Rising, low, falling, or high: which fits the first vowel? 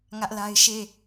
high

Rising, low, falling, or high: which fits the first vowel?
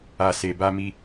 low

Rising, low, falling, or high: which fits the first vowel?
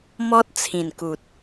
high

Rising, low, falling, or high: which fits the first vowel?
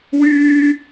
high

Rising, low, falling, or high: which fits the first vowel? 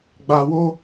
low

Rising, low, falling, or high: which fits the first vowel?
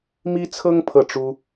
high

